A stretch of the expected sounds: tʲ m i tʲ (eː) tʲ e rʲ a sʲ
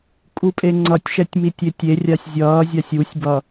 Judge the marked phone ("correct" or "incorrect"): incorrect